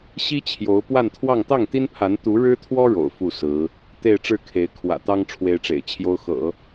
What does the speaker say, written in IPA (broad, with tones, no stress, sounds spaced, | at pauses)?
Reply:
ɕ i˥ t͡ɕʰ j o˧˥ ʊ̯ p w a˥˧ n t̪ʰ w ɑ˥˧ ŋ t̪ ɑ˥˩ ŋ t̪ i˥ n pʰ a˧˥ n t̪ u˧˥ ɻ ɻ̩˥ t̪ʰ w ɔ˥ ɻ o̰˨˩ ʊ̯ f u˥˩ s ɹ̩˧˥ | t̪ e˥˧ ɪ̯ ʈ͡ʂ ɻ̩˥˩ kʰ e˧˥ ɪ̯ kʰ w ä̰˨˩ t̪ ɑ˥ ŋ ʈ͡ʂʰ w e˥ ɪ̯ ʈ͡ʂ ḛ˨˩ ɪ̯ t͡ɕʰ j o˥ ʊ̯ x ɤ̰˨˩˦